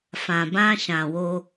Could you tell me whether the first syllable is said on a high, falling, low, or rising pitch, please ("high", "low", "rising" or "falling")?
low